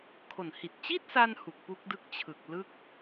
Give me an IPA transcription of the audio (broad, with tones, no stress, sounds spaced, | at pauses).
kʰ o˨˩ n h i˨˩ t̚ t͡ɕ i˥˩ t̚ s a˧ n h u˨˩ k̚ p u˦˥ k̚ d ɯ˦˥ k̚ t͡ɕʰ ɯ˨˩ k̚ l ɯ˥˩ k̚